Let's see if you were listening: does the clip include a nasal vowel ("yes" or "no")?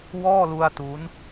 no